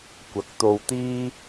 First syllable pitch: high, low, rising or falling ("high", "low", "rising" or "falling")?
rising